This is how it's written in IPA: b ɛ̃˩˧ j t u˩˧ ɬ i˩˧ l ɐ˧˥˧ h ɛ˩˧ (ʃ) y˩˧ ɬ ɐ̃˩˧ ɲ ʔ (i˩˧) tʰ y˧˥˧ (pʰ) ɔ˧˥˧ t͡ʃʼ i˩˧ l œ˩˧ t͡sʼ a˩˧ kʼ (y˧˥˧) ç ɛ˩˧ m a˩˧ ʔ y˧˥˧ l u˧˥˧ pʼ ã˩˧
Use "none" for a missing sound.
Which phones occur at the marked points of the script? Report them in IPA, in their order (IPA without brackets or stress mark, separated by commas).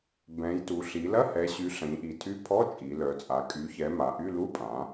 ɕ, i˩˧, pʰ, y˩˧